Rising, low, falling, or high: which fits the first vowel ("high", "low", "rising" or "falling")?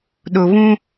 low